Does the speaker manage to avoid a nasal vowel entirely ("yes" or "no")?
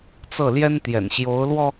yes